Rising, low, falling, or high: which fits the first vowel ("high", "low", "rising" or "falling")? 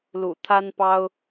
low